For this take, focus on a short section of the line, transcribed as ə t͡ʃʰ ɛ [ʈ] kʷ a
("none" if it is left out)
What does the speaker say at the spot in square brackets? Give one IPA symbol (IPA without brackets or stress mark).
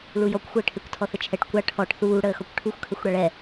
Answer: ʈ